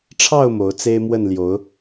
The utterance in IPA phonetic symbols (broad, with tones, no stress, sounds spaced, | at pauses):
ʈ͡ʂʰ ɑ˥˨ ʊ̯ m o˨˦ ʊ̯ t͡s e˦ ɪ̯ m w ə˥˨ n l j o˨˦ ʊ̯